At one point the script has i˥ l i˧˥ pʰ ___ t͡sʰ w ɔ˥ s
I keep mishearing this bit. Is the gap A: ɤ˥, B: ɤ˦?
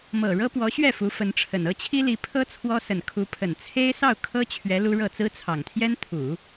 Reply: A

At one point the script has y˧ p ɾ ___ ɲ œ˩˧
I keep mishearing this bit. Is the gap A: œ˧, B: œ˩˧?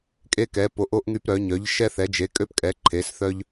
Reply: B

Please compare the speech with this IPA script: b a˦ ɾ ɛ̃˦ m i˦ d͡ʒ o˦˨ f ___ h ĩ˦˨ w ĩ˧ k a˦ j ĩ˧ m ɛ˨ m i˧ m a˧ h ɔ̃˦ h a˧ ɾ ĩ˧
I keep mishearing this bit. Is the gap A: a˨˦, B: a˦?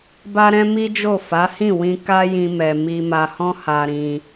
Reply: A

